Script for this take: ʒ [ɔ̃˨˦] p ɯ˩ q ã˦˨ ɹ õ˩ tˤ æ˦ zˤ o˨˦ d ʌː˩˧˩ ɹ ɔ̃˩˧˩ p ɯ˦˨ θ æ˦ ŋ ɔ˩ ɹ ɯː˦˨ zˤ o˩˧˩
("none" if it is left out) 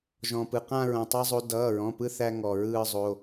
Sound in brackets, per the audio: ɔ̃˩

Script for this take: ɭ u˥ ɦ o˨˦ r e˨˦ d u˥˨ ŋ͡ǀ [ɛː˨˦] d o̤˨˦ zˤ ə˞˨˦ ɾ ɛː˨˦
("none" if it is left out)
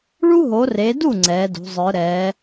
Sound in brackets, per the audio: ɛː˨˦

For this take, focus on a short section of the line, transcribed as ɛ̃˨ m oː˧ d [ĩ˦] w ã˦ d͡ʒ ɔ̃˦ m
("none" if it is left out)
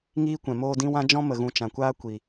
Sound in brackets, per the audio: ĩ˦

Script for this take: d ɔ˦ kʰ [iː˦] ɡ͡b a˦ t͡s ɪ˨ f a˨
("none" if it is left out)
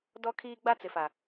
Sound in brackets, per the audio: iː˦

